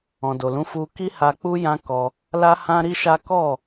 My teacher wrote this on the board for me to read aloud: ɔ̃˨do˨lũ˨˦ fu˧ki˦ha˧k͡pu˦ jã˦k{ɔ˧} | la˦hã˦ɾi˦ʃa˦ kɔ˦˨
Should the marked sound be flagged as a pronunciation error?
no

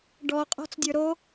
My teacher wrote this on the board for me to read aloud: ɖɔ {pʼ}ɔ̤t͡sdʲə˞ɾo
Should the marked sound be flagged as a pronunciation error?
yes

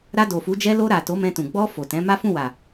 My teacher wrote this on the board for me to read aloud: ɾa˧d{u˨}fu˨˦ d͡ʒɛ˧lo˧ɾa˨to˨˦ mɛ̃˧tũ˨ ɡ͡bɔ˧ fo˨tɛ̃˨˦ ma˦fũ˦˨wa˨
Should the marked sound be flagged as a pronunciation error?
yes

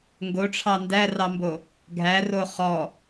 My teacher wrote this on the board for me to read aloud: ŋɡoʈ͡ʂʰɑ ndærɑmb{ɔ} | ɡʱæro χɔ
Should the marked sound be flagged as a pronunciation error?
yes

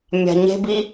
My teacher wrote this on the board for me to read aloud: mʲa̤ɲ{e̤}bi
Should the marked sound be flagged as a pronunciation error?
no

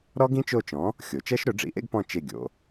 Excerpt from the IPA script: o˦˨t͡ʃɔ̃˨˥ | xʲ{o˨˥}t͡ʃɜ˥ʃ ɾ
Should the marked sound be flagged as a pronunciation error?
yes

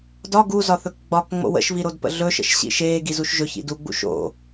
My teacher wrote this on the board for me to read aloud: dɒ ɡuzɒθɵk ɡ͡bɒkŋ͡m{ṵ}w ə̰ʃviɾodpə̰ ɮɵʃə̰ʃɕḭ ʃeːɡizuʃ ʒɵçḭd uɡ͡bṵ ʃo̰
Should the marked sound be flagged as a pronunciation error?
yes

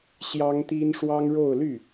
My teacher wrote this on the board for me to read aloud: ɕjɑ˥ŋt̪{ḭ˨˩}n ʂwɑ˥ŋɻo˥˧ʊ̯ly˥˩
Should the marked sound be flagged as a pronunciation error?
yes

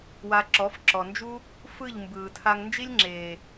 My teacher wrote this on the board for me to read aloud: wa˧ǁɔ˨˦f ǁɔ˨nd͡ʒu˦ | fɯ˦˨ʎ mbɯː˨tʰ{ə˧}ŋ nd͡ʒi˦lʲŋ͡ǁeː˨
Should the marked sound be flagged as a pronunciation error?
yes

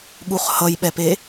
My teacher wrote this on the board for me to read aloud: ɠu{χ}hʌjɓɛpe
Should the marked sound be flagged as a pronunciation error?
no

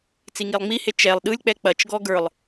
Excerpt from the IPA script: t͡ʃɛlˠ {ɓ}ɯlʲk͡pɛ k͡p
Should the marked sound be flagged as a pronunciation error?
yes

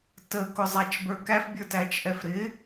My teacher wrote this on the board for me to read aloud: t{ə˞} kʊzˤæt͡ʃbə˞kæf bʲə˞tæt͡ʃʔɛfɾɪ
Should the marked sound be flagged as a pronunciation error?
yes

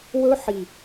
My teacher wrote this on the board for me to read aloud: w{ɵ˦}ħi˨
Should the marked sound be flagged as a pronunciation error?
no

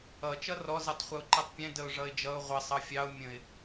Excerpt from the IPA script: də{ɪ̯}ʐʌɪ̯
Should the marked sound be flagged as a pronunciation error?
yes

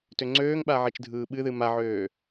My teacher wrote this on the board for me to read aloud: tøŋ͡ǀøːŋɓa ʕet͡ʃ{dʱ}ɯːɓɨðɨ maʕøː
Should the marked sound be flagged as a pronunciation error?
no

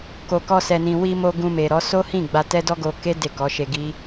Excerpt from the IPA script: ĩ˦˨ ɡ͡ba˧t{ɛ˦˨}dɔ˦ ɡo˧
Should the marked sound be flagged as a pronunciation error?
yes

